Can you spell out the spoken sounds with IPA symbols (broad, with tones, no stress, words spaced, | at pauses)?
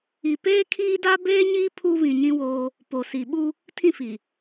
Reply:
i˨ peː˦kʰiː˦da˦ beː˦ɲiː˦ pʰu˦ βĩ˨ɲĩ˦woː˦ | po˨si˨ ɓu˦ | tʰĩ˦˨fi˨